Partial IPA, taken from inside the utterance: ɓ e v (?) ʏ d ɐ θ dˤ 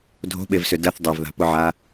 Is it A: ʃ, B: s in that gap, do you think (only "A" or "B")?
B